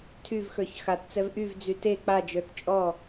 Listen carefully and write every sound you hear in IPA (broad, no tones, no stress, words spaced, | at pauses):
tʰyvxə˞ç xatt͡sɛv ʔyvd͡zy te k͡pad͡ʒə˞t t͡ʃʼɔ